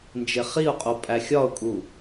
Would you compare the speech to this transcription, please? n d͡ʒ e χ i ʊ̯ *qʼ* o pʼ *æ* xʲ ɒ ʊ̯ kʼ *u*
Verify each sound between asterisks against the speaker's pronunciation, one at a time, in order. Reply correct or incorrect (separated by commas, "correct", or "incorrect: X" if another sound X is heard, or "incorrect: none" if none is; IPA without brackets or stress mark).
correct, correct, correct